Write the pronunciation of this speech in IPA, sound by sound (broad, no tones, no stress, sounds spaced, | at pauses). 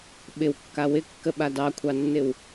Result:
ɓ ɪ w kː a w ɪ kː ə ɓ a d ɑ kʷʰ ɑ nː ɪ w